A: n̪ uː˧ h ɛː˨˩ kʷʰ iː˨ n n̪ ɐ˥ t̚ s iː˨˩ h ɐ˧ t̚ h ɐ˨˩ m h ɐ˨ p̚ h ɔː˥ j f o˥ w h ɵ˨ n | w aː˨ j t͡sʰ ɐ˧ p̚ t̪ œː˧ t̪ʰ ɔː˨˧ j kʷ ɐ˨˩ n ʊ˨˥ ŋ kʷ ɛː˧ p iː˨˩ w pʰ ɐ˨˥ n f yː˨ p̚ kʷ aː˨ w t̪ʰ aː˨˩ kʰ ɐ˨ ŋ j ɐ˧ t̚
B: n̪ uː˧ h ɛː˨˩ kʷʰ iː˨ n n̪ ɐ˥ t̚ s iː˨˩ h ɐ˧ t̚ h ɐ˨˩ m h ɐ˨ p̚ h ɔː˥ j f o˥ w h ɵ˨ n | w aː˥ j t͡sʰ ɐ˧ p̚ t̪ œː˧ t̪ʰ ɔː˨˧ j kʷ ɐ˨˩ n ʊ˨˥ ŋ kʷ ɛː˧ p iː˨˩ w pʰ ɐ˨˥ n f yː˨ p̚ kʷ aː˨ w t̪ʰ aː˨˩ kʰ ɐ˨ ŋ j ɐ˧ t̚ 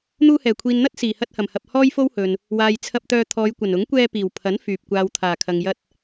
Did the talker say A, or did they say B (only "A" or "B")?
A